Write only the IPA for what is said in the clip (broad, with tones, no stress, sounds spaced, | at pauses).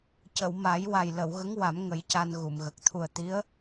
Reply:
c ə˨˩˨ w m a˨˩˦ j w a˨˩ j l ə˨˩˨ w ɣ ə˧˥ ŋ w a˨˩˦ m ŋ ə˨˩˦ j c a˧ n ɣ u˨˩˨ m ɣ ə˨˩ k̚ t̪ʰ u˨˩ ə̯ t̪ i˧˥ ə̯